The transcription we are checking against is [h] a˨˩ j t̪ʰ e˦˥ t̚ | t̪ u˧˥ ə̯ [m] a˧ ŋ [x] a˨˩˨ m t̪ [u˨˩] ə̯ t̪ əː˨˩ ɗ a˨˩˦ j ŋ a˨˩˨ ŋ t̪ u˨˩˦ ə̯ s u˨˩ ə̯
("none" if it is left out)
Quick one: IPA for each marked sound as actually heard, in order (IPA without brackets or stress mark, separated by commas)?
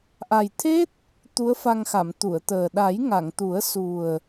ʔ, f, x, u˨˩˨